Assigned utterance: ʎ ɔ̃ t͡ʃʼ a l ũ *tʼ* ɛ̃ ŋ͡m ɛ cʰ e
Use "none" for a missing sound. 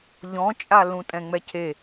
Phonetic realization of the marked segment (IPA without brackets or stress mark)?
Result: tʼ